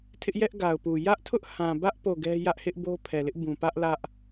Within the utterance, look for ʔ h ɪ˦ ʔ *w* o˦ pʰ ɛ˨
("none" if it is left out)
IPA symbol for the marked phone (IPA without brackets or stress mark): b